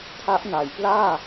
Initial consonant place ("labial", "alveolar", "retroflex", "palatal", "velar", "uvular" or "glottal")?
alveolar